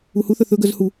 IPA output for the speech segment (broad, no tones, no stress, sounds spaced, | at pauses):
u h u θ œ θ ɵ ɡ œ z h u